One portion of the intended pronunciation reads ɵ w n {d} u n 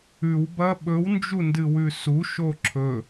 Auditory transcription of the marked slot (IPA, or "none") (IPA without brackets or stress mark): d͡ʒ